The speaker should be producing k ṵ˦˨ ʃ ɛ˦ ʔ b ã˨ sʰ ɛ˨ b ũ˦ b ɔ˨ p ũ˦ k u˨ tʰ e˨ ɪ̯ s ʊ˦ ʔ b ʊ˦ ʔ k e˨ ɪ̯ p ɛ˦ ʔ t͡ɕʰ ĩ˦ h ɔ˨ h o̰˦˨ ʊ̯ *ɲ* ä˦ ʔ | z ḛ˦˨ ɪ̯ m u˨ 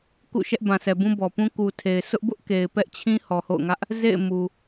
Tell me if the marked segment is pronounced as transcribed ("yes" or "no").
no